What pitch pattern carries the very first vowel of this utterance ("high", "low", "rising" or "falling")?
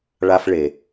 high